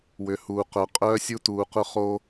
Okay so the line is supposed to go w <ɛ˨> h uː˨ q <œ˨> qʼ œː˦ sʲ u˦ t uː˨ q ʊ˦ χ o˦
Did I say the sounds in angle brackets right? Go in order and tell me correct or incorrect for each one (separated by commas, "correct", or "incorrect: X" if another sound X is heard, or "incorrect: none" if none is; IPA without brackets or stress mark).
incorrect: ʏ˨, correct